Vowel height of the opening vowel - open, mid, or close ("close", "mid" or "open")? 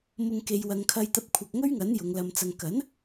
close